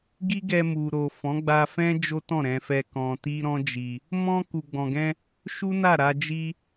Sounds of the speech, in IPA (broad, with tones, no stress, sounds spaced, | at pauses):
ɡ i˦ ɡ ɛ˧ m u˨ ɾ o˨ f ɔ̃˨˦ ɡ͡b a˧ f ɛ̃˦ d͡ʒ o˦ t ɔ̃˦˨ ɾ ɛ̃˧ f ɛ˧ k ɔ̃˧ t i˦ ɾ ɔ̃˦ d͡ʒ i˧ | m ɔ̃˧ k u˨ ɡ͡b ɔ̃˨ ɡ ɛ̃˧ | ʃ u˦ n a˦˨ ɾ a˧ d͡ʒ i˦